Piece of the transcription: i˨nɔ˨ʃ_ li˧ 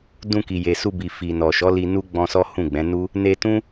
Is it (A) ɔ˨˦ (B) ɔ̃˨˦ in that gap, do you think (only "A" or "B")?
A